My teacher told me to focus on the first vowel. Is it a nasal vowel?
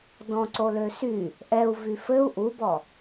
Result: yes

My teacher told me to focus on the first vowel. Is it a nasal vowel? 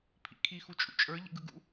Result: no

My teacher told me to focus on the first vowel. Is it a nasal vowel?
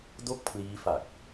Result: no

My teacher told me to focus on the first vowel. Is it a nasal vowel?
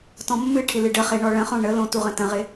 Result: yes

